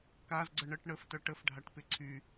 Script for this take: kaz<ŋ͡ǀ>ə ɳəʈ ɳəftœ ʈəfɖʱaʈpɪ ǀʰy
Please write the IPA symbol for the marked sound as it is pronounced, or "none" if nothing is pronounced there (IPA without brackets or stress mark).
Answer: ɡ͡ǀ